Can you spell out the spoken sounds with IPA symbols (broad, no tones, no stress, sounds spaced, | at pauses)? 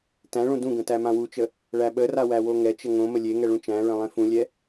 t æ̃ ɭ ũ d ũ ɡ ə̃ t æ m ã w u t͡ʃ ə | ɭ æ ɓ ə r a w æ w o ŋ ɛ t͡ʃ ə ŋ õ m ə lʲ e ŋ ɛ ɭ ũ t͡ʃ æ̃ ɹ ə̃ lˠ ẽ f ũ lʲ ɛ